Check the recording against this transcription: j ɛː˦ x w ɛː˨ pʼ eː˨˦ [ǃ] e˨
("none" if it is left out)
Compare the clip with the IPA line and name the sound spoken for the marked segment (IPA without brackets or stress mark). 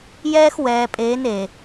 n